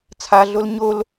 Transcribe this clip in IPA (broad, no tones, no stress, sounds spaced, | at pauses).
t͡sʰ a ɮ o l ɲ o l